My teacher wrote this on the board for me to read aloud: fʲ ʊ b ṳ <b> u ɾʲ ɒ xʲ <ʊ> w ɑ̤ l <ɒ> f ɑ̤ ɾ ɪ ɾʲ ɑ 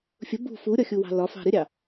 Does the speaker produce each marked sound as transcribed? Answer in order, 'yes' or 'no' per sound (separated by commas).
no, no, yes